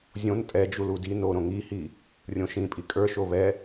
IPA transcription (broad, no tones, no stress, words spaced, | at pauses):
zʲõn tʼɛ d͡ʒuludi noɾõ ŋihi | rʲõʃĩpʼi kʼə˞ʃo βɛ